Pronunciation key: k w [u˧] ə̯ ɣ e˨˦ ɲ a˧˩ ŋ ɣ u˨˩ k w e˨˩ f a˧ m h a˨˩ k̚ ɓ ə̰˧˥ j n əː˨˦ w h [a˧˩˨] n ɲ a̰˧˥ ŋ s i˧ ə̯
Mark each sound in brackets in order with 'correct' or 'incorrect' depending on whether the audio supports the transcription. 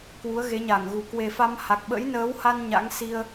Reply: incorrect, incorrect

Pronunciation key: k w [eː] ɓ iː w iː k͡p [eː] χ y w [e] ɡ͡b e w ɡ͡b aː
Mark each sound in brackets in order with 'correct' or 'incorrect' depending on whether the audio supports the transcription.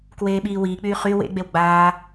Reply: correct, incorrect, incorrect

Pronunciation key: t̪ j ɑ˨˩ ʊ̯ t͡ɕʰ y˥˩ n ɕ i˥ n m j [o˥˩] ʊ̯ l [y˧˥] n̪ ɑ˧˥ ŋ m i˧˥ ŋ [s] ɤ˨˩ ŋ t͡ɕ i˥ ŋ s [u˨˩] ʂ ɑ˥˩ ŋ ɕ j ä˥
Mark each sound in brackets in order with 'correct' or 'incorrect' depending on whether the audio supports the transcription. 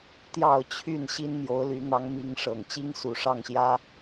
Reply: incorrect, correct, incorrect, correct

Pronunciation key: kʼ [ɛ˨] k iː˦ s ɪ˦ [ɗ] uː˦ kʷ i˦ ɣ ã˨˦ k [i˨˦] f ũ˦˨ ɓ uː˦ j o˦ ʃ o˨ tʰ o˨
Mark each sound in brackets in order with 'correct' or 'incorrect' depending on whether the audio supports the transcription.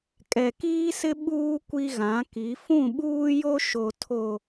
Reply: correct, incorrect, correct

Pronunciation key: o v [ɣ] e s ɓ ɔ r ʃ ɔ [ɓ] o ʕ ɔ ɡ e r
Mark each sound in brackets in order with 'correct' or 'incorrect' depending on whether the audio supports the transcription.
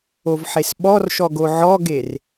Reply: incorrect, incorrect

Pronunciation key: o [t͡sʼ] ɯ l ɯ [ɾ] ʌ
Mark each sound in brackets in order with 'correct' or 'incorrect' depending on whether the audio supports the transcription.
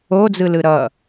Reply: incorrect, correct

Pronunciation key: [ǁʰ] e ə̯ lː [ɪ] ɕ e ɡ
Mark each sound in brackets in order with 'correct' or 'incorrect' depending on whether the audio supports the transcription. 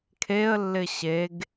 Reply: incorrect, correct

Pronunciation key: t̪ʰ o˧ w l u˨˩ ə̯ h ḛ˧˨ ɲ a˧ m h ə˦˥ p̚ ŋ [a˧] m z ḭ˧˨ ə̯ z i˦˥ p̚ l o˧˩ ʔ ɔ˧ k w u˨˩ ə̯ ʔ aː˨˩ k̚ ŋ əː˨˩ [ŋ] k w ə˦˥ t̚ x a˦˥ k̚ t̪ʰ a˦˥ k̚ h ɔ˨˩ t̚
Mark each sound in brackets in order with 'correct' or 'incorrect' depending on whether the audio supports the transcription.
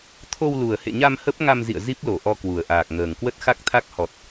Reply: correct, correct

